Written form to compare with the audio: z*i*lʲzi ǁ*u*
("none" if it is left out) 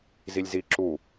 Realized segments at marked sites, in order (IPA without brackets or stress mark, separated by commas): i, u